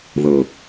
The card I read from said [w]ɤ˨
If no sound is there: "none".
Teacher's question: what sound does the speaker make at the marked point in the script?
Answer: ð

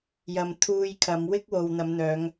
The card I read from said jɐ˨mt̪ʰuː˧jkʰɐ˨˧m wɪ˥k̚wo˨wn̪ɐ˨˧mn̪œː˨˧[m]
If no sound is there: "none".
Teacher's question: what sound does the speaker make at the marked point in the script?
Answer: ŋ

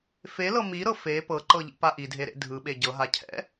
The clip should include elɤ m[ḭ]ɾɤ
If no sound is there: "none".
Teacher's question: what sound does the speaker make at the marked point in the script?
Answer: i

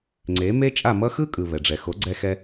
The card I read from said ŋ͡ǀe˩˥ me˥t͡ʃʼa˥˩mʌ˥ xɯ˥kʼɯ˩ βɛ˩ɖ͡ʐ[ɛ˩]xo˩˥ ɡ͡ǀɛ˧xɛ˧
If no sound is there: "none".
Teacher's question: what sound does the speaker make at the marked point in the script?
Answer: ɛ˩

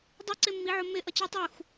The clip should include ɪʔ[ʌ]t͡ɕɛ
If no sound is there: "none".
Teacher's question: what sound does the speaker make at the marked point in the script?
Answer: ʌ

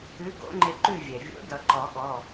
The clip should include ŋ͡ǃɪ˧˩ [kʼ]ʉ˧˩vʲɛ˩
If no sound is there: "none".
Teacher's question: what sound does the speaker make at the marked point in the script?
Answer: ǃ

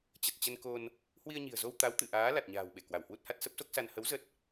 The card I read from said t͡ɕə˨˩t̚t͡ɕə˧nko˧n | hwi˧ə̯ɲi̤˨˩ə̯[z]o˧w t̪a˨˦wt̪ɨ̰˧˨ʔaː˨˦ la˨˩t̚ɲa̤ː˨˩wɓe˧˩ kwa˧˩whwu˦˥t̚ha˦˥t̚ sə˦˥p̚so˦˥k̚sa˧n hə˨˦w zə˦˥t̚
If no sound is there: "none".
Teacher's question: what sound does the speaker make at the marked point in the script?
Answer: z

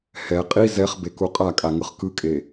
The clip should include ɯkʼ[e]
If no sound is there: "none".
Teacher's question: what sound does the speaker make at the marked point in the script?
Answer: e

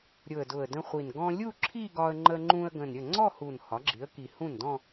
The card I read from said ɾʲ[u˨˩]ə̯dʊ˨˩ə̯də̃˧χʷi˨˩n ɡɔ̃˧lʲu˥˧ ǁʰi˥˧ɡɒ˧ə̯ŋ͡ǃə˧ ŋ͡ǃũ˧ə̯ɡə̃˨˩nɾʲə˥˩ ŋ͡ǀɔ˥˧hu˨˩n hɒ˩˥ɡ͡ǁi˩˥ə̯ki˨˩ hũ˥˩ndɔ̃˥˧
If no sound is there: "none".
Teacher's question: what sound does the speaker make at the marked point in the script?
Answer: ʊ˨˩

